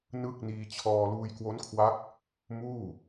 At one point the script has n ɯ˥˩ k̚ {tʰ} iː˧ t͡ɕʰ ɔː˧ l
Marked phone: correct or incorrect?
incorrect